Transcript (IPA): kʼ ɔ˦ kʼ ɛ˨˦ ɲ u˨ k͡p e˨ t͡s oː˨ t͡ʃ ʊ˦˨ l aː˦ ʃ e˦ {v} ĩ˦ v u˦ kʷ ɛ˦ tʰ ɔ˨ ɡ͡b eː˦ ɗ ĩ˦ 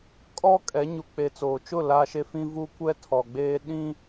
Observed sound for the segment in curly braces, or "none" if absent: f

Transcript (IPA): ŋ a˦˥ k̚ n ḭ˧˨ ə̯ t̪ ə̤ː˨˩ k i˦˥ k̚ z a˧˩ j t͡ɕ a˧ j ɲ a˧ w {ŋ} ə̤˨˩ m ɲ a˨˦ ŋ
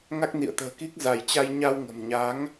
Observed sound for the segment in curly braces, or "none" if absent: ŋ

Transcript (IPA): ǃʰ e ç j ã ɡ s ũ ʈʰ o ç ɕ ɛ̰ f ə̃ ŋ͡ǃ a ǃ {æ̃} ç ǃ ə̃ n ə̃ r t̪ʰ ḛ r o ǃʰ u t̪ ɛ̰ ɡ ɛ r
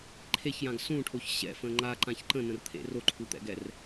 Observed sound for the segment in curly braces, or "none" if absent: ã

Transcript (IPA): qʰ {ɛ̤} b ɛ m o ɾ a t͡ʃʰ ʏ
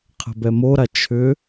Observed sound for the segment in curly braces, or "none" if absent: ɛ̤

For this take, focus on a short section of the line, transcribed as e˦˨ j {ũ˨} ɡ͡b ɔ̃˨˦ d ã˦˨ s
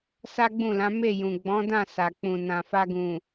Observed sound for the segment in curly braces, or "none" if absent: ũ˨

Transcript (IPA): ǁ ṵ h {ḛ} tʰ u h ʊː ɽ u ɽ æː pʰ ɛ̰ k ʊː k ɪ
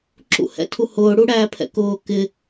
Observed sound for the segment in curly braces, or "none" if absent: ɛ̰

